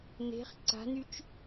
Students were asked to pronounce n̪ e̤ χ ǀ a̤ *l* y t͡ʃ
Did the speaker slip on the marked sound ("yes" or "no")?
yes